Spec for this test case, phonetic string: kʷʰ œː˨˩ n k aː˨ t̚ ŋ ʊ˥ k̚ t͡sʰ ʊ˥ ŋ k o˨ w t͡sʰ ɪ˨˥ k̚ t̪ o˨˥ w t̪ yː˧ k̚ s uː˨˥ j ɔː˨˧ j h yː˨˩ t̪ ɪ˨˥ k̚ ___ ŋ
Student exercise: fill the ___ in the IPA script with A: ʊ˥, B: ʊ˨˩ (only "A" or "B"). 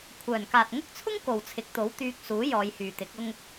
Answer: A